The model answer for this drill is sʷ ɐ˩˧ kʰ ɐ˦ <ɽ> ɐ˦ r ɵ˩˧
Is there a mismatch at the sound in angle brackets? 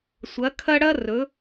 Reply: no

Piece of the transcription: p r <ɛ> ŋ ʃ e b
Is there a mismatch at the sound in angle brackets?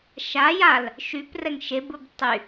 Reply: no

